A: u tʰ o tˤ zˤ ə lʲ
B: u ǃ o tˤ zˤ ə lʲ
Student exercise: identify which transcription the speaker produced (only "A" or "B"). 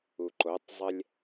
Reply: B